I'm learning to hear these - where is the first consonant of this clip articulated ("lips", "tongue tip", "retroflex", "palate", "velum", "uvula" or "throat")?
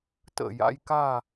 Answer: tongue tip